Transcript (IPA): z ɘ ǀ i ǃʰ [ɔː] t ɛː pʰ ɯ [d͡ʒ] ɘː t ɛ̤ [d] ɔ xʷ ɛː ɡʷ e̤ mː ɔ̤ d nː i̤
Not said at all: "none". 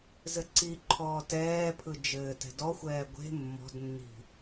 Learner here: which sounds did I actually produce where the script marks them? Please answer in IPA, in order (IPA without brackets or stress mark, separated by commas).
ɔː, d͡ʒ, d